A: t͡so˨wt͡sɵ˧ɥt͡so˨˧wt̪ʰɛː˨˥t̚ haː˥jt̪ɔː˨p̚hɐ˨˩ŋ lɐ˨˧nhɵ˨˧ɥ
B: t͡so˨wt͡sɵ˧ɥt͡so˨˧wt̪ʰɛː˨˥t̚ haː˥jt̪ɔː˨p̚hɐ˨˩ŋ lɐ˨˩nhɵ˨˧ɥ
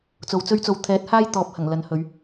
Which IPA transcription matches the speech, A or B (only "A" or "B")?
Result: A